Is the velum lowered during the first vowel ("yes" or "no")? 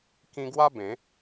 yes